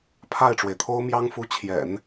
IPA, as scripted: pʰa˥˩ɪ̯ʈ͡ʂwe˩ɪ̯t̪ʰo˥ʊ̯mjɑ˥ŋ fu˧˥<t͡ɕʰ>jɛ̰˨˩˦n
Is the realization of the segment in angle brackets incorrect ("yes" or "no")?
no